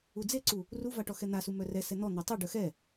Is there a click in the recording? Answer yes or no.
yes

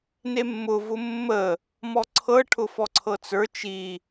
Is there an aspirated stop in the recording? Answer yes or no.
yes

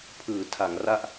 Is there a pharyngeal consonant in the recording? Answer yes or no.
no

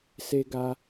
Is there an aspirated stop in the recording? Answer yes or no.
no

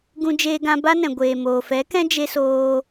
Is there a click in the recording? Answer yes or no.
no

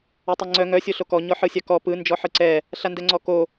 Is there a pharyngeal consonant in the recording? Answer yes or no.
yes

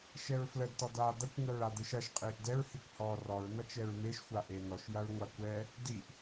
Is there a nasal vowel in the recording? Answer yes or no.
no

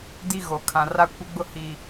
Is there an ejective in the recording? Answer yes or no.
no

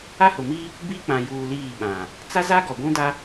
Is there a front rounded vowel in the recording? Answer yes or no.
no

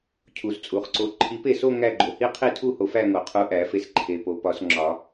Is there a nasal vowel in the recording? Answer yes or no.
no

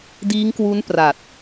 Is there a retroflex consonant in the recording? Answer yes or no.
no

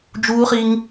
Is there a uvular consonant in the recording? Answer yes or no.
yes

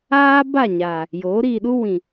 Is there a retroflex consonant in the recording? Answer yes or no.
no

